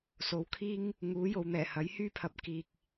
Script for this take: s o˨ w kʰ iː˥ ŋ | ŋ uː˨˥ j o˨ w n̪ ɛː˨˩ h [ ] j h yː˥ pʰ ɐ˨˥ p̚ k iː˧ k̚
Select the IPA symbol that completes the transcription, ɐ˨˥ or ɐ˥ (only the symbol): ɐ˨˥